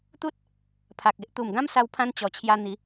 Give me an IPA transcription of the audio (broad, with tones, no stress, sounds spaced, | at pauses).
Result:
t̪ u˦ t̚ | pʰ a˨ k̚ e˦ ʔ t̪ u˨˩ m ɡ ã˦ m s a˧ w pʰ ã˧ n t͡ɕ ɔ˨˩ t͡ɕʰ j a˧ n̪ i˨˦